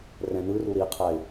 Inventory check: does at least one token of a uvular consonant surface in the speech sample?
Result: yes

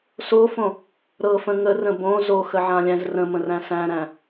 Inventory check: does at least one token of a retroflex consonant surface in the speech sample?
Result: no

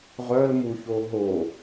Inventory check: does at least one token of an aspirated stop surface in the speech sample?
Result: no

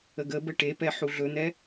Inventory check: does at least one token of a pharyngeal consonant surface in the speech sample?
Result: yes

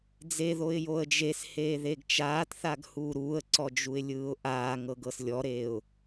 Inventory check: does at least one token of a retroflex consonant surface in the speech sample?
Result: no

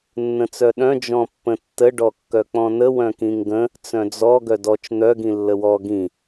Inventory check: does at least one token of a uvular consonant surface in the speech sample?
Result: no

